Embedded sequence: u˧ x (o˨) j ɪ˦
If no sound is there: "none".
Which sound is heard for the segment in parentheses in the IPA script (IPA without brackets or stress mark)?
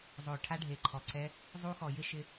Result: ɔ˨